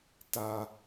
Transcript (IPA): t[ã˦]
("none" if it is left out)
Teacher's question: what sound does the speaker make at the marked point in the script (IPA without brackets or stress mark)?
a˦